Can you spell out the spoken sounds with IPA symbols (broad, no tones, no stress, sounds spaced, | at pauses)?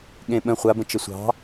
ɠ ẽ ɓ ə̃ χʷ a b ə̃ t͡ʃ ə sʷ ɑ̤